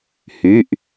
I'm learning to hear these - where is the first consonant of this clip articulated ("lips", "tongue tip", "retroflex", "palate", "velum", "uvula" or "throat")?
throat